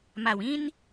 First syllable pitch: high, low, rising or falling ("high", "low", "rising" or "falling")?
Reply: low